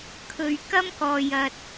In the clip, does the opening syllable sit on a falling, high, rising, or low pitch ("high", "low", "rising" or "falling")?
low